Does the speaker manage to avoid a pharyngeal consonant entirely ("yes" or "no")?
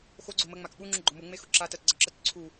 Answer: yes